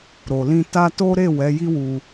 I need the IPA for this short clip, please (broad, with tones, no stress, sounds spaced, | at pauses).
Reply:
ɾ o˨ l ĩ˧ t a˧ t o˦ ɾ e˦˨ w ɛ˨˦ j i˦ w u˧